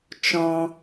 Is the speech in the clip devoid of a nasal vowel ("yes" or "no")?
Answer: no